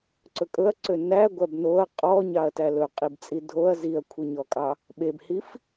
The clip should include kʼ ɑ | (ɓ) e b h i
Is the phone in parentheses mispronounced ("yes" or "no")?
no